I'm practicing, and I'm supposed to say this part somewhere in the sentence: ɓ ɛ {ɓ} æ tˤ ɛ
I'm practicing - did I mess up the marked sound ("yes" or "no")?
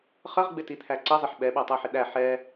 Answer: no